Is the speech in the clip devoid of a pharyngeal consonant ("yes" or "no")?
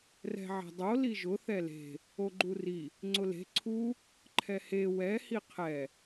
no